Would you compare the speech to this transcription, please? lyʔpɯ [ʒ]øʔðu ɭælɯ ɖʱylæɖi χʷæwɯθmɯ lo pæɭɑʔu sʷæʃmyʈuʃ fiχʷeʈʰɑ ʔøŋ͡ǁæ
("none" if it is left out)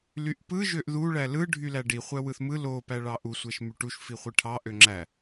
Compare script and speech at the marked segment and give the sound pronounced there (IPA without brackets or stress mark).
ʒ